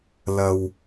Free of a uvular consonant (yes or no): yes